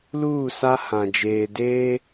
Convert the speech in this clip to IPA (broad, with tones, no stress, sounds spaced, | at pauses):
l uː˦˨ s a˦ h ã˨ d͡ʒ eː˨ d eː˦